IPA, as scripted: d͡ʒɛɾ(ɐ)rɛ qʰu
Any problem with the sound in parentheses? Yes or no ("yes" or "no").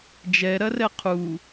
no